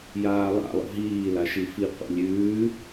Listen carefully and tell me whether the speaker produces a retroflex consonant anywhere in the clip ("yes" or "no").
no